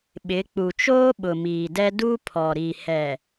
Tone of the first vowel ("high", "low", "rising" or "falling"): rising